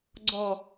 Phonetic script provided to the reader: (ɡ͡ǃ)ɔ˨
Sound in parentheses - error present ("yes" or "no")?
yes